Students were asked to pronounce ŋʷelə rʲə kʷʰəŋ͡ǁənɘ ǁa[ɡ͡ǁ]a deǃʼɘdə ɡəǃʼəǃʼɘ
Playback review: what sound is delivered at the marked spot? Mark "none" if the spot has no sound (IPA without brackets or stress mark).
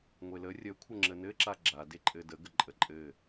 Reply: ɡ͡ǁ